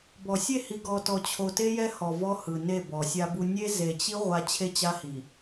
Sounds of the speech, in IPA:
b ɔ˨ sʲ e˦˨ h i˨ ɡ ɔ˨ t ɔ˨ t͡ɕʰ o˨ t e˦ j ɛ˦ h ɔ˨ v ɔ˦ h ɯ˨ n e˦˨ b ɔ˨ sʲ a˦ b u˦ nʲ e˦ z e˨ t͡ɕ i˦ ʁʷ a˦ t͡ɕʰ e˦ t͡ɕ a˦ h i˨

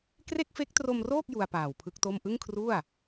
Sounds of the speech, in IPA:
k r e˥˩ k̚ f e˦˥ k̚ t r o˧ m r oː˥˩ k̚ j u˧ a̯ p aː˨˩ w pʰ ɯ˦˥ k̚ t o˥˩ m ʔ ɯ˥˩ ŋ kʰ r u˥˩ a̯

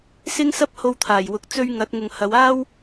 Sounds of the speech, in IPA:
s ɪ˥ ŋ s ɐ˥ p̚ h o˧ w t̪ʰ aː˨˩ j w ʊ˨˥ k̚ t͡s ɵ˥ ɥ ŋ ɐ˨˥ t̚ ŋ ʊ˨ ŋ h ɐ˨˧ w aː˥ w

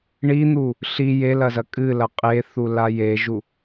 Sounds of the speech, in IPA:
ɳ i n̪ u | ɬ i j e l ɐ z ɐ kʼ ɨ l ɐ qʼ e θ u l a j e ʒ u

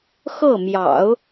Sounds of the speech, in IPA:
x ɤ˥˩ m j ɑ̰˨˩˦ ʊ̯

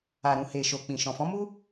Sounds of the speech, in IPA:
a˨ ɾ ũ˨ h e˨ ʃ o˨ k͡p ĩ˨ ʃ ɔ̃˨ f ɔ̃˨˦ m u˦

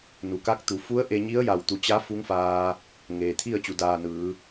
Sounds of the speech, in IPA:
n u˩ k a˧˥ k̚ t̪ u˩˧ f u˧˥ ə̯ ʔ e˧ ɲ i˧˥ ə̯ j a˧˩ w t̪ u˧˩ t͡ɕ a˧˥ f u˧˥ ŋ f aː˧ | ŋ eː˩ t̪ʰ i˥˨ ə̯ t͡ɕ u˩˧ d aː˧˩ n ɯː˩˧

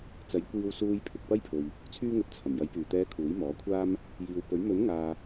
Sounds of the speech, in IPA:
t͡s ɐ˨˥ j kʷ iː˧ w s uː˧ j pʰ ɪ˨ k̚ p ɐ˥ j pʰ ɵ˨ ɥ | t͡sʰ yː˧ ŋ ɵ˨ t̚ t͡sʰ ɐ˨˩ m j ɐ˨˧ j p yː˨˩ t̪ ɛː˨˧ kʰ uː˨˥ j m ɔː˨˥ kʷʰ aː˥ m | j iː˨ w p ɵ˨˥ ɥ m ɵ˨˥ n ŋ aː˨

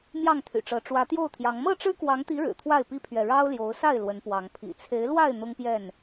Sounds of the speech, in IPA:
m j ɑ˥˨ ŋ t̪ʰ y̰˨˩ ʈ͡ʂ ɤ˨˦ ʈ͡ʂ w ä˨˦ t̪ j o˥˨ ʊ̯ t̪ʰ j ɑ˨˦ ŋ m ɤ˥˨ ʈ͡ʂ ɻ̩˦ k w ɑ˨˦ ŋ t̪ i˨˦ ɻ ɻ̩˨˩ t̪ʰ w a˥˨ ɪ̯ p i˦ pʰ ɥ ɛ˨ ɻ ɑ˦ ʊ̯ l j o˨˦ ʊ̯ s a˥˨ ɪ̯ l w ə˨˦ n p w ɑ˨˦ ŋ pʰ ḭ˨˩ t͡sʰ e˨˦ ɪ̯ l w a˥˨ ɪ̯ n̪ ʊ˦ ŋ p j ɛ˥˨ n

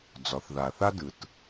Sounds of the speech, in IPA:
d͡z ɒ˩˧ θ ð a˩ θ a˥ d ɯ˩ t

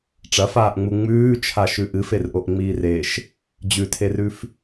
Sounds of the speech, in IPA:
ʈ͡ʂ ɐ f aː ʔ ŋ͡m u ŋ͡m ʉː t͡ʃʰ a ʃ ʉ ʔ ɨ f e r ʔ o ʔ ŋ͡m iː r e ʃ | d͡ʑ ʉ tʰ e r ʉ f

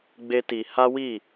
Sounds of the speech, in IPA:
ɡ͡b e˦ t i˧ h a˦ w i˦˨

